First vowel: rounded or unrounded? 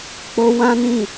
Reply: rounded